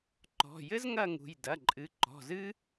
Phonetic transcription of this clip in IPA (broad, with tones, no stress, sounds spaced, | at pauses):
ǃ ɔ̤˩˧˩ j ɘ˥ z ŋ ɐ˥˧ ŋ ṳ˩˧˩ j d ɐ˩˧˩ ǃʼ ɨ˩˧˩ ǃ ɔ̤˩˧˩ z ɨ˥